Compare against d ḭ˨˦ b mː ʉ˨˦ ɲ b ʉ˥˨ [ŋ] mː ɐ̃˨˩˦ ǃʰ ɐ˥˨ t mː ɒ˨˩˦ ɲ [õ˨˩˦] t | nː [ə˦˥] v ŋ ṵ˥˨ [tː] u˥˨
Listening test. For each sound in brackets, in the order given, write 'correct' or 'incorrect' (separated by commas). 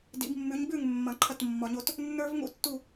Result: correct, incorrect, incorrect, correct